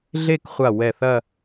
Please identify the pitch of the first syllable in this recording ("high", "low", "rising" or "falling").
falling